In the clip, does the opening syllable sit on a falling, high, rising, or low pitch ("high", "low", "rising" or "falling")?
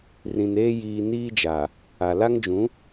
low